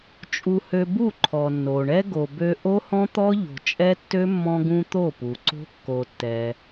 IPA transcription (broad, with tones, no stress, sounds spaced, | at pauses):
t͡ʃʼ u˧ h ø˧ b u˦˨ ǃʰ ɔ˨ nː o˨ ɳ ɛ˦ ɡ o˨ b ø˧ ʔ o˦ h ɔ̃˦ t̪ ɔ˦ ʎ o̤˨ t͡ʃʼ ɛ˦ tː ø˦ mː ɔ̃˧ ɡ ũ˧ t̪ o˦˨ p u˨ ǀ o̤˦ kː o˧ tː ɛ˧